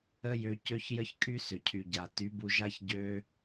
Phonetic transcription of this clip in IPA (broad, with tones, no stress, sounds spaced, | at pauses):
ə˦ j ø˧ c ø˦ ç j ə˦ ç kʼ y˦ s ʏ˨ cʰ y˨ ɟ a˨ t y˨˦ b u˧ ʒ a˦ ç ɟ ø˧